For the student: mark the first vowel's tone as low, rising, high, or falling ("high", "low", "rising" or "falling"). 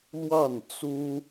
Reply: falling